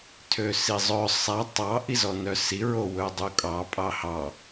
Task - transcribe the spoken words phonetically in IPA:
tʰ ø s i zˤ œ sˤ æ tˤ ɑ ʔ i z ɔ n œ s i ɹ o w ɵ dˤ u kʼ ɑ pʼ ɑ h ɑ

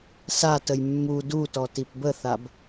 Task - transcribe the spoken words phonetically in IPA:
s a t ə j mː u d u t ɔ t i p b ə θ a b

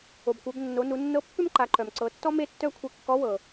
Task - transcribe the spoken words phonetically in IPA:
o˩ b kʷ œ˩˧ b nː o˩˧ n u˩˧ nː ɤ˧˥ pː ʏ˥ m ǃ a˩˧ ǃ œ˩ m ǀ ɤ˩˧ tː ɔ˥ m e˥ tː œ˥ kʷʰ e˧ kː ɔ˧˥ w ɤ˩

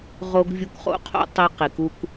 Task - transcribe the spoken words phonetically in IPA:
ʁ o˧ ɡ vʲ u˧ k χ o̰˧ qʰ o̰˧ tˤ i˧ q i˨ k u˧ k

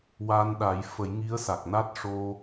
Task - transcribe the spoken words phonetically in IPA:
w a˧ n ɗ a˨˩˦ j f ə˨˩˦ j ŋ i˧˥ ə̯ s a˨˩ k̚ n a˦˥ t̚ ʂ o˧

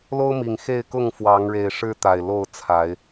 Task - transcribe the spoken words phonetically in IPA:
l o˦ ʊ̯ m i˨˩ ŋ x e˥˨ ɪ̯ k ʊ˥˨ ŋ f w ɑ˨˦ ŋ ɻ e˨˩ ɪ̯ ʂ ɻ̩˦ t̪ a˨˩ ɪ̯ l o˥˨ ʊ̯ t͡sʰ a˨˦ ɪ̯

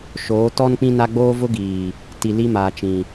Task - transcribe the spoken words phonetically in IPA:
ʃ oː˨˦ t ɔ˦ n k͡p ĩ˦ n a˦ ɡ͡b oː˦ v ʊ˦ ɡ iː˨ | t i˨ l i˦ m aː˨ t͡ʃ ĩ˨

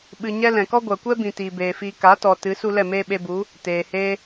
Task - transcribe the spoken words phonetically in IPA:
ɓ ɨ˧ ɲ ɛ˦ l ɛ̃˨ k ɔ˦ ɡʷ a˨ kʷ ɛ˦ b ĩ˨ t iː˨ b eː˨ f iː˧ k a˨˦ t ɔ˨ t ɨ˨˦ s u˦ l ɛ˦˨ m eː˦ ɓ e˧ b u˨˦ | t eː˨ h eː˦

